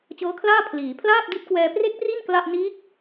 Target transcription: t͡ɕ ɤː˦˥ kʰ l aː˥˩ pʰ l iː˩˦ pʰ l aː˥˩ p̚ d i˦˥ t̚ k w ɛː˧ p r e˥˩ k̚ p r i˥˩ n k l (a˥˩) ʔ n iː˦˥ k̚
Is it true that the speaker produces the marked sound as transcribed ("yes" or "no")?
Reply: yes